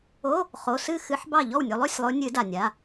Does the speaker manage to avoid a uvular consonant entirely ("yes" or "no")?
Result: no